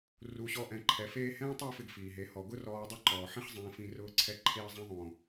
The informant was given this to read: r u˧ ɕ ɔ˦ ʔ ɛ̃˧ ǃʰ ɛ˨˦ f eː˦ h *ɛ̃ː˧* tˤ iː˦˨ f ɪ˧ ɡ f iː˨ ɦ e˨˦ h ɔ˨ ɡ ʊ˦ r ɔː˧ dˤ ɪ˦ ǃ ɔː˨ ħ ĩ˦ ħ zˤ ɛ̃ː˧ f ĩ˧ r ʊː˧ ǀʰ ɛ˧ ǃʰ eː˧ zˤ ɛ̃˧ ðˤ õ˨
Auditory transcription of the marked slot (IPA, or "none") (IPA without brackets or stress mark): ɛ̃ː˦